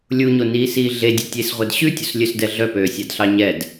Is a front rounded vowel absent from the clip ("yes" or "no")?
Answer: no